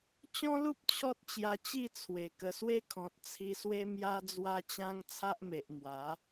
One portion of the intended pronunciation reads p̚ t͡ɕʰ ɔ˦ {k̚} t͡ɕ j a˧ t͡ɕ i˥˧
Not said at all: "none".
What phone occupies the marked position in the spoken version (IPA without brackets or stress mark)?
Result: t̚